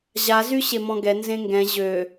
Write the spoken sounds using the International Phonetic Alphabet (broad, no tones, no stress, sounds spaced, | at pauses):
ʑ a z y ɕ e m ɔ̃ ɡ ɛ n z ẽ ŋ ɡ ɛ̃ ʑ ø